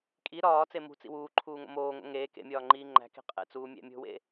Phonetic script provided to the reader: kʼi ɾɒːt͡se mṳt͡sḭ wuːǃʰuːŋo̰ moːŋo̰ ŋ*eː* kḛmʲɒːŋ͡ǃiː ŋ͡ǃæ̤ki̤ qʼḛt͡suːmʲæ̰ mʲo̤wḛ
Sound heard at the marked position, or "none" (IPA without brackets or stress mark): eː